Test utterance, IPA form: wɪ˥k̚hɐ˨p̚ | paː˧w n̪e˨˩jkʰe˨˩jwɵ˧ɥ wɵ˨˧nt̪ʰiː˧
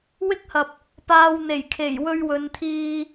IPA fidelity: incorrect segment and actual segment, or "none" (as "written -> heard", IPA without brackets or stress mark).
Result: none